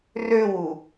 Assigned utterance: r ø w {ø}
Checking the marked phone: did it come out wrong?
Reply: yes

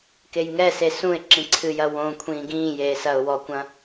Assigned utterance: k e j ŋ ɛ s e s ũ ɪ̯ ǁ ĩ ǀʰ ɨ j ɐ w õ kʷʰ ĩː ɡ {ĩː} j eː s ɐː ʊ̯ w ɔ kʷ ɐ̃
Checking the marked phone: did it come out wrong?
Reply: no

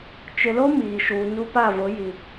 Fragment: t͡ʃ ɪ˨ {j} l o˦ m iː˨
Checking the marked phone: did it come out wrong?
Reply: yes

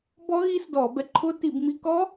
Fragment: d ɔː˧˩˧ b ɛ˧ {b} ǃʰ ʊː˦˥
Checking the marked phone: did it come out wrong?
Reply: yes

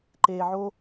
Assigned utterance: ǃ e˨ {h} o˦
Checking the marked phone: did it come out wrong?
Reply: yes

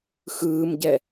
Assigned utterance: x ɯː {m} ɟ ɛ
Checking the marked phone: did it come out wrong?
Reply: no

